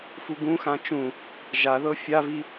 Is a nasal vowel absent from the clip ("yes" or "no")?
no